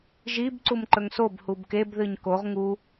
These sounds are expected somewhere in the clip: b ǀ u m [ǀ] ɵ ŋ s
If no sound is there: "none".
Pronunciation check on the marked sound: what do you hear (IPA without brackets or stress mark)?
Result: ǃ